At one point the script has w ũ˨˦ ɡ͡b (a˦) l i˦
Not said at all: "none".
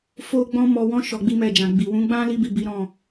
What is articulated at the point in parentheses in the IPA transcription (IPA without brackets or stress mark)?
ã˦